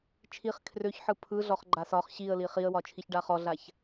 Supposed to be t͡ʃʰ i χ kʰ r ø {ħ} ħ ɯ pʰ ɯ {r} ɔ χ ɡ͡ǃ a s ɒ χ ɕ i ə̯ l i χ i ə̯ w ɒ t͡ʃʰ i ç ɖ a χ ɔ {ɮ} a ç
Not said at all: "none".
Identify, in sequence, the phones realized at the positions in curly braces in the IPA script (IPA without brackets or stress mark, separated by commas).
ç, ɮ, ɮ